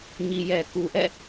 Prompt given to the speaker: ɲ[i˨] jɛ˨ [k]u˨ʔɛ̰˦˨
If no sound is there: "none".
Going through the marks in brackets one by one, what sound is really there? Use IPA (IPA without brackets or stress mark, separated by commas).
i˨, k